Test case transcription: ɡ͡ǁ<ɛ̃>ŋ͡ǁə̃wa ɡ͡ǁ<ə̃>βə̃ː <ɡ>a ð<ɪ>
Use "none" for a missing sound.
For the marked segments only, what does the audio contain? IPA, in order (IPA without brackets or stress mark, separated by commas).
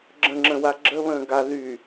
ə̃, ə, ɡ, y